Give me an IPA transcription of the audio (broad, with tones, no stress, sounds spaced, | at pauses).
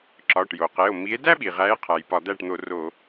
ǁ ɒ˩˧˩ ʈ j o˩ q e˩˧˩ o̯ m i˨˦ e̯ d æ˥ ɓ i˩ ʁ æ˨˦ e̯ qʰ æ˩ j p ɒ˧˩˧ d̪ æ˥˩ ʈ n̪ o˧˩˧ r o˧˩˧